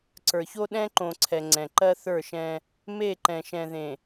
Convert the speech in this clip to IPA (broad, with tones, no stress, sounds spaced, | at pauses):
ǀ ə˞˨ ç o˦ ɗ ɛ̃˦ ǃ õ˨ ǀʰ ɛ˨ ŋ͡ǀ ɛ̃˨ ǃ ɜ˦ θ ə˞˦˨ ʃ ɛ̃˦ | m e˦˨ ǃ ɛ̃˨ ʃ ɛ̃˨ ð ẽ˨